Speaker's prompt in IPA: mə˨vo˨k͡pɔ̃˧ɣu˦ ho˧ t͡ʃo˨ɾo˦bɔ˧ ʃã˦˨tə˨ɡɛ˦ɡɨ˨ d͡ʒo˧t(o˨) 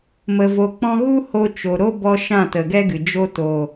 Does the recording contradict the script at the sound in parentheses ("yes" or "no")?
no